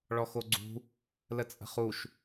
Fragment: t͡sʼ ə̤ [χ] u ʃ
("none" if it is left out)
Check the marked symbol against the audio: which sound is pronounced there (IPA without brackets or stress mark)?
χ